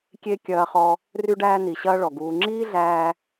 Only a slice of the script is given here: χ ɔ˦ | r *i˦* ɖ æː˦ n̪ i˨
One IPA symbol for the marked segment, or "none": y˦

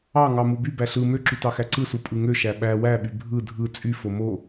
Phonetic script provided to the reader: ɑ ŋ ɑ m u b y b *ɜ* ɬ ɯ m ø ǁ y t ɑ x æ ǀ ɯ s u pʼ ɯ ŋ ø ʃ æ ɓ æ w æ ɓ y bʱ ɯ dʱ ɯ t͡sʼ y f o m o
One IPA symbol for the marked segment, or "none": æ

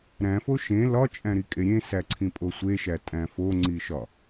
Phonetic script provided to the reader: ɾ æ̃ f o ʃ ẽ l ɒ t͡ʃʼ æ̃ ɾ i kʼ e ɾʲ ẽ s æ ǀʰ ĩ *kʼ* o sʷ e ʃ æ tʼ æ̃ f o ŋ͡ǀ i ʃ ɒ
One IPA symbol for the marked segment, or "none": pʼ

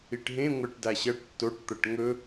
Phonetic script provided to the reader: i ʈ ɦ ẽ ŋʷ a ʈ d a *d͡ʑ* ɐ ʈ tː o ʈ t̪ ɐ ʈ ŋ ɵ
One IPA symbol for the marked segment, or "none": ɕ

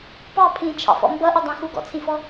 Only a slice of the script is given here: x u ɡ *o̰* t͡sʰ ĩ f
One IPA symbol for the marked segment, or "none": ɔ̰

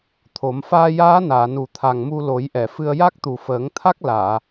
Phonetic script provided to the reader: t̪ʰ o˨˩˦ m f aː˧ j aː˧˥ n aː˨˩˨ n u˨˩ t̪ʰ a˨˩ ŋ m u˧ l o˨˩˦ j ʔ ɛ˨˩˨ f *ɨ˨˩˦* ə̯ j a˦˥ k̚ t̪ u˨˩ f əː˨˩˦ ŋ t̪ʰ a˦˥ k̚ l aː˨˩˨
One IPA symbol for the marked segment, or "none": ɨ˧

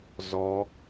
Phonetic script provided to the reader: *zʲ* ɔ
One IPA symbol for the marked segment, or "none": z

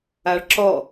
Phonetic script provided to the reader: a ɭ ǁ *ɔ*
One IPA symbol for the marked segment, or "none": ɔ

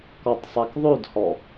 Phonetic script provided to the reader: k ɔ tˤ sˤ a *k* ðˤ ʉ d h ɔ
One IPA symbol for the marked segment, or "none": k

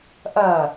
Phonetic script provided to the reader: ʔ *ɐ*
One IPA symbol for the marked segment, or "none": ɐ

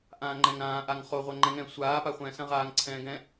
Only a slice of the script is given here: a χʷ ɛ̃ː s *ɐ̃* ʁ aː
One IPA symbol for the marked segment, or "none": ɐ̃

